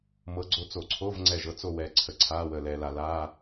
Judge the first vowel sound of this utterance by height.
mid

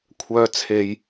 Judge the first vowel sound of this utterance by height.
mid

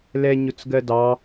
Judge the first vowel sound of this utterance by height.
mid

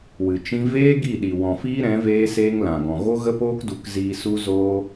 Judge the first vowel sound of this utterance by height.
high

